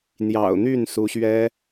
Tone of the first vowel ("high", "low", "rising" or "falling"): low